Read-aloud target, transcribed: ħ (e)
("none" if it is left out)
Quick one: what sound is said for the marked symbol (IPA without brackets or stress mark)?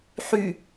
y